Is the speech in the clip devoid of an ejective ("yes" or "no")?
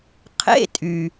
no